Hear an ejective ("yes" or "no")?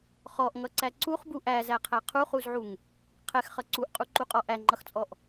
yes